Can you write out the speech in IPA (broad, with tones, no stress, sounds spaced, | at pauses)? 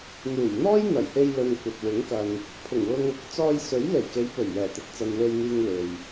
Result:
n̪ uː˨˩ j n̪ ɔː˥ j n̪ ɐ˨˩ j h e˧ j l ɵ˧ n kʷ ɐ˨ t̚ w ɪ˨˥ ŋ k ɐ˨ n | pʰ ʊ˨˩ ŋ w ʊ˧ ŋ | t͡s ɔː˧ j s ɵ˨˥ ɥ l e˨˩ j k e˨˧ j p ɵ˨˩ ɥ j ɛː˨˩ t̪ ɪ˨ k̚ t͡s ɐ˨ n w e˧ j n̪ iː˧ ŋ w e˨ j